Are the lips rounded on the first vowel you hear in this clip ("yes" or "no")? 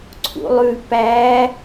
yes